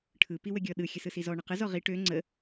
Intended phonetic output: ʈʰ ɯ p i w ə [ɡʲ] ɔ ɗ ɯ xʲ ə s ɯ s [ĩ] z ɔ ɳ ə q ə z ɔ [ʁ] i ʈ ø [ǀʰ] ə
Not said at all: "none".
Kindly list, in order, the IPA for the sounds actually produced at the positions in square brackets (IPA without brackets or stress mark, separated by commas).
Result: ɡʲ, i, ʁ, ŋ͡ǀ